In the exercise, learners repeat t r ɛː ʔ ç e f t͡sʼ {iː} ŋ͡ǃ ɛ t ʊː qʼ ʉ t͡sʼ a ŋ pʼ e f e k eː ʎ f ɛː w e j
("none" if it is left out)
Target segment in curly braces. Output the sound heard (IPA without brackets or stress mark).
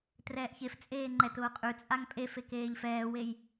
eː